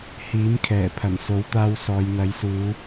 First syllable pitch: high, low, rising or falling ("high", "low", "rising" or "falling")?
rising